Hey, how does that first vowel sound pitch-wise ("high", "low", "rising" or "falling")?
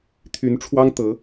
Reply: rising